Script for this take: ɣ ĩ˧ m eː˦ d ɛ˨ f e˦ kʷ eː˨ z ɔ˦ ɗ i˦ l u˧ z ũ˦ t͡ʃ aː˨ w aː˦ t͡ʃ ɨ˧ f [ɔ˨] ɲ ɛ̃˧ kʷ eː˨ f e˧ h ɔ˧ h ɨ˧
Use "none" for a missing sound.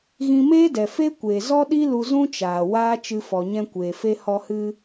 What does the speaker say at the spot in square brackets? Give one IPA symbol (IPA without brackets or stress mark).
ɔ˨